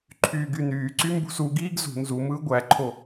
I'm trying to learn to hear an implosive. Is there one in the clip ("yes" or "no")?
no